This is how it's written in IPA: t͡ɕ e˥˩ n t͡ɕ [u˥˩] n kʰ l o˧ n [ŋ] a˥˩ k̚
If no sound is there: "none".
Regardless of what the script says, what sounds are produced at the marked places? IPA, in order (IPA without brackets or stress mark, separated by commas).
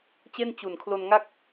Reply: u˨˩, ŋ